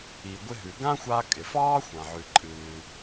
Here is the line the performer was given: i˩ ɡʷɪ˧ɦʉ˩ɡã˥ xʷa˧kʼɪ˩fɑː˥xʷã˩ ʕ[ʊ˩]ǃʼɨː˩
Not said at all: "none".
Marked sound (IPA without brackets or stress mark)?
ʉ˩